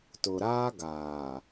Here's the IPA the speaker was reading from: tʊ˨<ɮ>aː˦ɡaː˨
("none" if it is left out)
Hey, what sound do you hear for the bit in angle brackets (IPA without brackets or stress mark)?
ɾ